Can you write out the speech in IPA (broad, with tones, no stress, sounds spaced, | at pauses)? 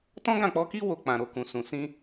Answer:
t ɔ̃˦ ɡ ã˦˨ k͡p ɔ˧ k i˦ w o˦˨ k͡p ã˨ ɾ o˨ k ũ˨ s ũ˨ s ĩ˧